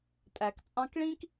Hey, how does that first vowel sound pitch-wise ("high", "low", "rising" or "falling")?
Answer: low